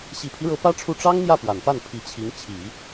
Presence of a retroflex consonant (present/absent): present